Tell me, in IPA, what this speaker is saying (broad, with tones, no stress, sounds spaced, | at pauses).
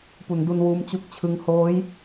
p u˩˦ n d u˧ n w uː˦˥ m t͡ɕ u˥˩ k̚ t͡ɕʰ ɯ˥˩ ŋ h oː˦˥ j